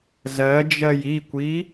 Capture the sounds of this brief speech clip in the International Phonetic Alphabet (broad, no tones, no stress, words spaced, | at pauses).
zɜd͡ʒɜj ikʷi